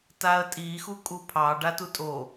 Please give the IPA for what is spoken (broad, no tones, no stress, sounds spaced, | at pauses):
t a ə̯ tʼ i x u kʼ u pʰ ɑ ɖ a t u tʼ o